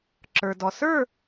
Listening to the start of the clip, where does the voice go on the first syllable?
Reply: low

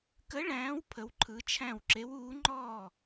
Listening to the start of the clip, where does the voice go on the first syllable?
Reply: rising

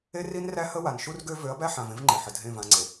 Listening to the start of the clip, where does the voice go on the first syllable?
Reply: high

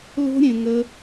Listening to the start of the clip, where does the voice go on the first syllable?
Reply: high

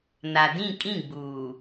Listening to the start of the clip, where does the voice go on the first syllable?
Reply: low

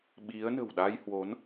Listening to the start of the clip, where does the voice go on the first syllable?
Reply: rising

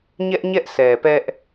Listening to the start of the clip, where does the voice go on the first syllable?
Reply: high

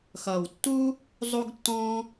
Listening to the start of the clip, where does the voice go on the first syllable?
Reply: low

